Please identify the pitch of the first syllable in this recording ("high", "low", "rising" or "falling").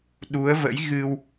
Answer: rising